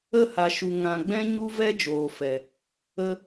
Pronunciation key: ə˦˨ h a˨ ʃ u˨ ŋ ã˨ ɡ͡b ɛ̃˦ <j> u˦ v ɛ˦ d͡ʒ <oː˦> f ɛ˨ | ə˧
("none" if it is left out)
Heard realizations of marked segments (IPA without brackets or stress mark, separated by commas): ɲ, oː˨